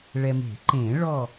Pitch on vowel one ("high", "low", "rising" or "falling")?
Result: low